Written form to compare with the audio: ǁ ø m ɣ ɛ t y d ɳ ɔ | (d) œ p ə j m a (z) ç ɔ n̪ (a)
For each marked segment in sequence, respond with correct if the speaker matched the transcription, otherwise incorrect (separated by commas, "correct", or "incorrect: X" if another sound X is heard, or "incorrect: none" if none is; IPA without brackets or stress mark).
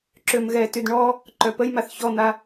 incorrect: ǃ, incorrect: θ, correct